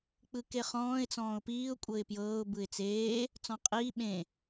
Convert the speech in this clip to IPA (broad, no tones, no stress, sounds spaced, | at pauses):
k͡p ɯ k e χ ɔ̃ː ɪ̯ t͡s ɔ̃ː ʊ̯ p iː ʊ̯ kʷʼ ɤ ɪ̯ p j ɤː ʊ̯ b ɯ ɪ̯ t͡s eː | t͡s ɔ̃ qʼ iː ɓ ẽ